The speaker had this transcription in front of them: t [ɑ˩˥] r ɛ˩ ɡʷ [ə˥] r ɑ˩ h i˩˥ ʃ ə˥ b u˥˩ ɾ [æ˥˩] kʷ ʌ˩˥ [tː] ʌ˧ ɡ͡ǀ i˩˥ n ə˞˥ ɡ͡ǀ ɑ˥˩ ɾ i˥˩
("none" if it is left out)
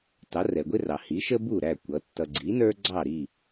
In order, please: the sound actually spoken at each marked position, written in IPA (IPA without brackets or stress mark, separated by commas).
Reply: ɑ˩˥, ɪ˥, æ˥˩, tː